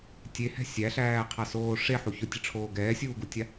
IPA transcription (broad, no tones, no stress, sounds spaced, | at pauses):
tʲ e h ɛ̤ sʲ æ ɬ æː qʰ a s oː ʂ e ħ u ç ʊ tʲ ə ʈ͡ʂʰ oː ɡ ɛː sʲ uː ɡ u tʲ a